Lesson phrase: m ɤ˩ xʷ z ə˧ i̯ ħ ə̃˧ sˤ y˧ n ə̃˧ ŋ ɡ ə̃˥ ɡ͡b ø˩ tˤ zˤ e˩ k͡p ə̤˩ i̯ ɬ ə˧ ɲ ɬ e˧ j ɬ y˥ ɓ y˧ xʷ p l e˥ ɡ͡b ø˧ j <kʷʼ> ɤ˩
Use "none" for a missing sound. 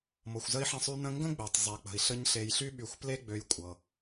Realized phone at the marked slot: kʷʼ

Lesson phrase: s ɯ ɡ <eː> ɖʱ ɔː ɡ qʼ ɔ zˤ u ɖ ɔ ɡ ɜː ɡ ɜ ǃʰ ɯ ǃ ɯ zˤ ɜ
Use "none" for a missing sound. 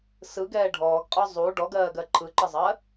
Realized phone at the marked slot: ɛː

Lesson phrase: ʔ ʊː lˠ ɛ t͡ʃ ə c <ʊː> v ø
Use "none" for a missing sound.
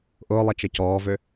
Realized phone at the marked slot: ɔː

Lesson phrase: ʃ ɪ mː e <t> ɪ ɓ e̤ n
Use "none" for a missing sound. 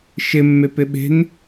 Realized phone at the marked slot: p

